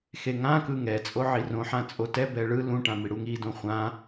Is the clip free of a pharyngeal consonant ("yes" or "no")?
no